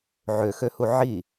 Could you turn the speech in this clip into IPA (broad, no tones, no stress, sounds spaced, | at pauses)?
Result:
ʕ ø x ø h u ʕ i